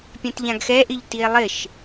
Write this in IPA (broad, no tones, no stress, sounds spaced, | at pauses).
pʲ ɛ̃ t ʎ ã ɡ x ɛ ʔ ɪ ʎ t i e̯ lˠ ɪ ʃ